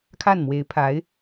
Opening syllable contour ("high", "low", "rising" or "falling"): falling